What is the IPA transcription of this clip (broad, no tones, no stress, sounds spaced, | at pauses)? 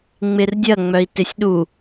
ŋ͡m ɪ r dʲ ɐ ŋ͡m œ i̯ t ɪ sʲ ɗ u